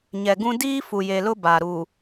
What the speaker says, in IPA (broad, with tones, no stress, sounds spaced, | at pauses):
ɲ ɛ˨ ɡ ũ˦ d iː˦ f u˨ j e˨ l ʊ˦ b a˨ ɾ u˨